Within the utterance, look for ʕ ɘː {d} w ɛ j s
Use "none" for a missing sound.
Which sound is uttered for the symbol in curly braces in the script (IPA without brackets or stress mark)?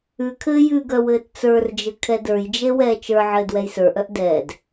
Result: d